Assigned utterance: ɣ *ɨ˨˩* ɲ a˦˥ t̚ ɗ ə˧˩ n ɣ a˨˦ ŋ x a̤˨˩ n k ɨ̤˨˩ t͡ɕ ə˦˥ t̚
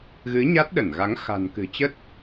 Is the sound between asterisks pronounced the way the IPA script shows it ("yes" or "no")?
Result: no